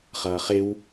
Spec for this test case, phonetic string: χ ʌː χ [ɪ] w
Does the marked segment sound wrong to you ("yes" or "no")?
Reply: no